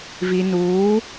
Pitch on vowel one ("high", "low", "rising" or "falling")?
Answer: low